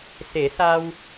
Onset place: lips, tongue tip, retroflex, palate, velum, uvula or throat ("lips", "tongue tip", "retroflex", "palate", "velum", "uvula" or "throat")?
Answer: tongue tip